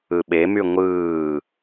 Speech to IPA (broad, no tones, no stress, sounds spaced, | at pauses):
ɯ ɓ e m y ŋʷ ɯː